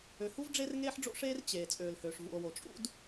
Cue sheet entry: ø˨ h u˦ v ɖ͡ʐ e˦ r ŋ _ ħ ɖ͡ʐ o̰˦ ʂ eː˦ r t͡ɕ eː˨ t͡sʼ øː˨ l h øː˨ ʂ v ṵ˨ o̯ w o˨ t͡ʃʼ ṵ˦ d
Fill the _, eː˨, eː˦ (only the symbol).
eː˦